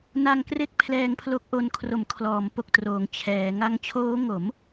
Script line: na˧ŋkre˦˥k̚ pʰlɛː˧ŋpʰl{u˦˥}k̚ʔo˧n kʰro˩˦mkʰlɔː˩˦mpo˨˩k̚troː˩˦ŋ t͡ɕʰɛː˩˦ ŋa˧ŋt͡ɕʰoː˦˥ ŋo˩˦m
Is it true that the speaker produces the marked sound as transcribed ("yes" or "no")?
no